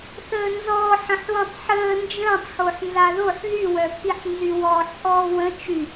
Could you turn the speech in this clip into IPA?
θəːnzɔːħ ə̃ħwə̃tˤħəː nd͡ʒə̃ːtˤxoħ nzaðoħ ðywœpʰiħnzy wɔːħʔɔːwə̃ t͡ʃy

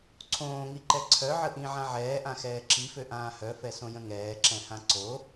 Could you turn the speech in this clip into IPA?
ǀʰõːŋiǃɛ ǀʰœʕə ʔĩʕã ʕɛːʔãxɛː ǁiføʔãː hœfɛsõjə̃ ŋɛːǁɛ̃hã ǀo

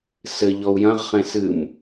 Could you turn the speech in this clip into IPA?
sɘ ʎɔu̯jɐ̃ʁχẽ sɨm

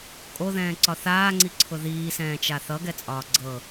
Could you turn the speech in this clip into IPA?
kʼoðɛ̃ːǀɒ θaːŋ͡ǀiǀʰʊ ðiːsɛ̃ːt͡ʃa θʌɡɛt͡sʼɒː ɡ͡ǀɤ

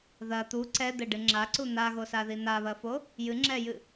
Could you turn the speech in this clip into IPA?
ðɐ t̪u ǀɛd̪ɘɖɨ ŋ͡ǁaǀu n̪aɣosaði n̪aβɐfo | jɨŋ͡ǁɛjɨ

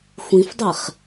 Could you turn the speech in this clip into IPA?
xʷĩfdˤeχ

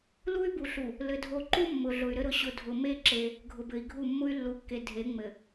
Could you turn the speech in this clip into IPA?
lu˦y̯bu˨ɬu˨ | lɘ˨dʱo˨ǃu˦ mːʊ˨ɮʊ˨y̯ɾɘ˦ ɾʊ˨ɕʊ˨ dʱʊ˨me˦ ǁe˦ | ɡʱʊ˨bɘ˨i̯ɡʱu˦˨ mːʊ˦y̯lːu˨kːe˨ dʱe˨˦ŋ͡mɘ˨

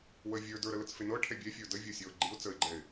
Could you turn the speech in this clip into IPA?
wə vʲə˞ də˞ɾələt͡sfe nɤʈʰɛ bʲɛfʲə˞ dəvʲɤsʲɔʊ̯ ɡ͡ǃiʊ̯ t͡səɪ̯ɡ͡ǃɛɪ̯

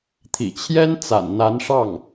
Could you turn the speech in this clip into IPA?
t̪ʰḭ˨˩t͡ɕʰjɛ˥n t͡sa̰˨˩nn̪a˧˥nʂɑ˥˩ŋ

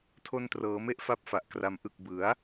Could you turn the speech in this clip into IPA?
tʰo˧ntrɤː˩˦me˦˥ʔ fa˥˩p̚fa˨˩ʔkra˧m ʔɯ˨˩k̚bɯ˩˦a̯

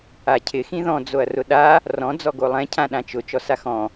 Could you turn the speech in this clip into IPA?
acʰɪ xĩðɔ̃ d͡zoɐ̯rʊɗa | rɔ̃ d͡zɔɡolˠɛ̃ cʰãɗãt͡ʃʊ t͡ʃɔsaxɔ̃

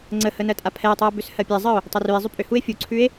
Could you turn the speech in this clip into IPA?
ŋ͡ǀəhə nɜtʼapʰɛo̯tˤuo̯ bʏshɜpʲɛzˤəo̯ | tˤʏrʉe̯zˤʏ pʼʏhue̯ fʲuǀʰʉe̯

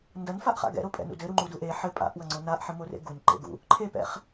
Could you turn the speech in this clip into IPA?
ndɐnfaʔχa̰ ɡɛ̰ɾopʼɛ̰nṵ dɘɾuŋ͡ǃudu ʔe ħɘ pʼa̰ʔwɐŋ͡ǀo naʔħɘmorḛ ɡunǃḛɡṵ | ǃʰepɛ̰χ

